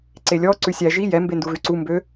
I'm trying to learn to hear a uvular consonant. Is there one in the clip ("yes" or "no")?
no